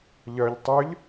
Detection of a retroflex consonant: absent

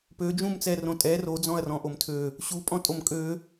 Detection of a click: absent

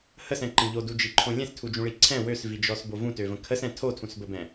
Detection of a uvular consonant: absent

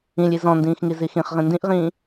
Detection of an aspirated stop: absent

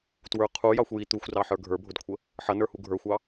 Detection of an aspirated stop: present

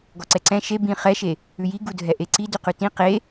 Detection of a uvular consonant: present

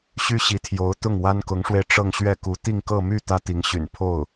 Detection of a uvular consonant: absent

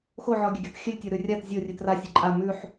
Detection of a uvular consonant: absent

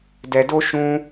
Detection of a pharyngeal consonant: absent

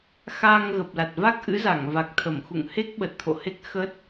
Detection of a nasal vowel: absent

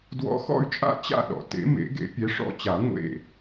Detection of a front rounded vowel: present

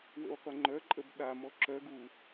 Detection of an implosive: present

